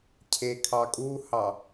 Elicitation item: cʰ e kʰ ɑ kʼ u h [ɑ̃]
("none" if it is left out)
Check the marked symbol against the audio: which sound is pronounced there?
ɑ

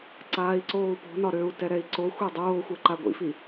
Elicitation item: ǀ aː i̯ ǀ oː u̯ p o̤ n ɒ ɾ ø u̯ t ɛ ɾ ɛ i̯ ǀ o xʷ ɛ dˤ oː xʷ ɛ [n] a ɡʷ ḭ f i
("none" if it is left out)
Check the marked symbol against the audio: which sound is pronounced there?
ǃ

